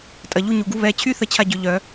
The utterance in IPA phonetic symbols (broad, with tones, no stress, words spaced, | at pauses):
tʼɐ˩˧˩ʎu˦ɲu˩˧˩ɡu˦ βɛ˩˧˩t͡ɕʰy˦ θə˦t͡ɕʰa˦ɟʏ˨˩˦ ʎœ˨˩˦